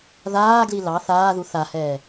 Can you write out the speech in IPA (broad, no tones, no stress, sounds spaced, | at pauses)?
ð aː ɡ l i l ɑ θ aː ð u θ a h ɛː